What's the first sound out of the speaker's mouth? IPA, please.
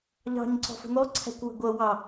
ʎ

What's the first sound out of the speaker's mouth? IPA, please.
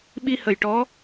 ɓ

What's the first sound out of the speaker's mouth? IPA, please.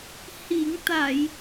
h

